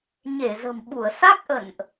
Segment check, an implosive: present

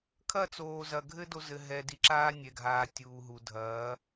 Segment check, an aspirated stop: present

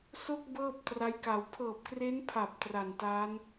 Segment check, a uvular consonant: absent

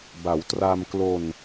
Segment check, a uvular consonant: absent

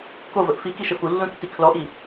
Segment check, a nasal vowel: present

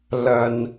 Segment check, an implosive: absent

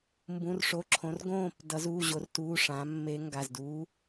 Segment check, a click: present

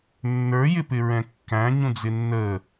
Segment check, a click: absent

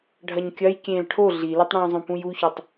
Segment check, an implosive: absent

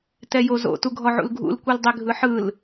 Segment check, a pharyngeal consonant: present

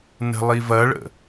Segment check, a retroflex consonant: present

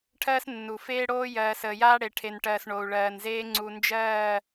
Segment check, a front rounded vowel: absent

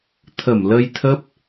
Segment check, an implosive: absent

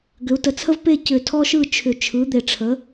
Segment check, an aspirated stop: present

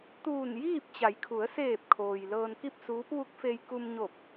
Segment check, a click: absent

